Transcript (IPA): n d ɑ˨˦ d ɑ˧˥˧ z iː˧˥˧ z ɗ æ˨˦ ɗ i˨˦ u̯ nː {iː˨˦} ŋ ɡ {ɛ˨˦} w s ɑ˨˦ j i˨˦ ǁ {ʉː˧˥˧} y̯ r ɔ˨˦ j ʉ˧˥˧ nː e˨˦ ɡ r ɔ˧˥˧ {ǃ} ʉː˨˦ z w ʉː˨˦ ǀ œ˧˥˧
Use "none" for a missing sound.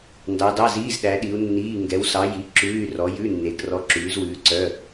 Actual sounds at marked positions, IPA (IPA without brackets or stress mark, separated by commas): iː˧˥˧, ɛ˨˦, ʉː˧˥˧, ǁ